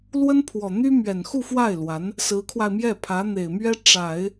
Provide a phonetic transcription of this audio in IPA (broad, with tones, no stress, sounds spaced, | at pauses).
l w ə˥ n pʰ w ɔ˨˩ n̪ y˥ m ɥ ɛ˨˩ n x u˥˧ f w a˥˩ ɪ̯ l w a˧˥ n | s ɹ̩˧˥ kʰ w a˧ ɪ̯ m j ɛ˥˩ pʰ ä˧˥ n̪ e˨˩ ɪ̯ m ɥ ɛ˥ ʈ͡ʂ a˨˩˦ ɪ̯